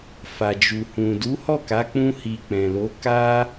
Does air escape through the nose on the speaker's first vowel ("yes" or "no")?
no